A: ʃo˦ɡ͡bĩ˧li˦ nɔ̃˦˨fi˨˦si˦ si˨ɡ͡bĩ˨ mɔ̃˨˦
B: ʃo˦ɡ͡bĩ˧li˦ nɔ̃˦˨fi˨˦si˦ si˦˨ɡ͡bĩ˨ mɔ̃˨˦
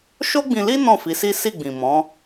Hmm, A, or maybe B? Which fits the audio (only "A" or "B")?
B